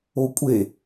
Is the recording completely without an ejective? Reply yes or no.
no